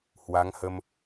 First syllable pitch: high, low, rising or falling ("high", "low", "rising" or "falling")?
rising